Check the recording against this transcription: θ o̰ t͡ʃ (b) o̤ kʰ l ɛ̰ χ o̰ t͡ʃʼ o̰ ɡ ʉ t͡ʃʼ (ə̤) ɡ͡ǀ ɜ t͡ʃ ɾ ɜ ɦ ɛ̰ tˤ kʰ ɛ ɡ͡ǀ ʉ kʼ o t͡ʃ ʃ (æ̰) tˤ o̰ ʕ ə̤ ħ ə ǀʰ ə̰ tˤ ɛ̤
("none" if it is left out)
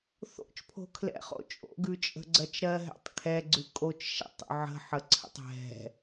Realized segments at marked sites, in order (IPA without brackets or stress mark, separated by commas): pʰ, ə̤, ɛ̰